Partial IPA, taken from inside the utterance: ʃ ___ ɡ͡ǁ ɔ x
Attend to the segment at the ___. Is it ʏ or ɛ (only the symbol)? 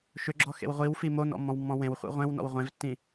ʏ